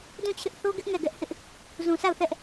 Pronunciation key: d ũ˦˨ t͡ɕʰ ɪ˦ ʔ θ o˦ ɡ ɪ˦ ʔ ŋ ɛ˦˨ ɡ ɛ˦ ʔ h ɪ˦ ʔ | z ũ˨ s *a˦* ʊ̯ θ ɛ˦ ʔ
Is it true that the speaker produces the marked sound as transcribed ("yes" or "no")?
no